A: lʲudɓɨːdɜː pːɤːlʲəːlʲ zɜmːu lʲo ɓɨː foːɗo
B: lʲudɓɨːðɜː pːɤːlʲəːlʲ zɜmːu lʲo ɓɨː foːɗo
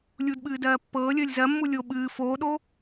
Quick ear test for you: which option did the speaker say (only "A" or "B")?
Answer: A